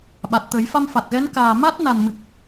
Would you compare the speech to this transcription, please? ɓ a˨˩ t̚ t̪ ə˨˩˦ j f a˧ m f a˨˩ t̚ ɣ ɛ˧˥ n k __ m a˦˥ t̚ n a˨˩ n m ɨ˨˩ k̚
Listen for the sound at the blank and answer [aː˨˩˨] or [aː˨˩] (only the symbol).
aː˨˩